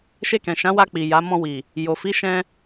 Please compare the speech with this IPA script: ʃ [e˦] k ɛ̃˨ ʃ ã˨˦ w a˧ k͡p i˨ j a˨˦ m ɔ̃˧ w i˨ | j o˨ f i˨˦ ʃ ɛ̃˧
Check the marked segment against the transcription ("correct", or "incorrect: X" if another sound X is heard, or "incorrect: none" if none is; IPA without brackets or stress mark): incorrect: e˧